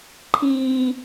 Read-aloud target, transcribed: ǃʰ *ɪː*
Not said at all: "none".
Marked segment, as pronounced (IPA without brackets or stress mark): iː